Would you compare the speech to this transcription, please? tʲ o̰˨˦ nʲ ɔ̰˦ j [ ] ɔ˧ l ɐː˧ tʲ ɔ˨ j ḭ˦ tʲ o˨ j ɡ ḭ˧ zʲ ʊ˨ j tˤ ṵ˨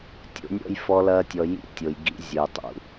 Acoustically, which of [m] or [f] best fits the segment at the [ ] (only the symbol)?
f